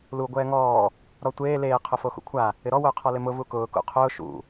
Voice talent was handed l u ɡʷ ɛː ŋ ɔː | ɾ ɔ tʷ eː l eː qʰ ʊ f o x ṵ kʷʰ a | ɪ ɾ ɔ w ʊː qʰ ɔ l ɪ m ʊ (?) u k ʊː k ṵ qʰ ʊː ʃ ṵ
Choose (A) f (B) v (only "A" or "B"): B